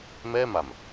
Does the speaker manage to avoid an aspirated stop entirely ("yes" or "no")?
yes